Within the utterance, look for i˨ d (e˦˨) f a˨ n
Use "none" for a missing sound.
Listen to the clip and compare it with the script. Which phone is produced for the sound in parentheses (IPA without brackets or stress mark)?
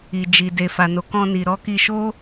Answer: e˨